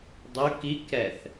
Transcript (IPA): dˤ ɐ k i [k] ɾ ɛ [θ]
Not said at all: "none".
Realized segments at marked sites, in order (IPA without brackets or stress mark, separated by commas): k, θ